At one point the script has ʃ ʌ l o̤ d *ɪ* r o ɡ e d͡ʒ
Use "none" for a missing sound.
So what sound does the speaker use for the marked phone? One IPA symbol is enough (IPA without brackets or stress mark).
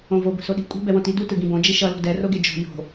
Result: ɛ